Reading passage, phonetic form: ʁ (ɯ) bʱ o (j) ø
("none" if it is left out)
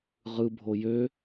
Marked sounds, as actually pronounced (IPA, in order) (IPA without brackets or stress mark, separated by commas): ɯ, j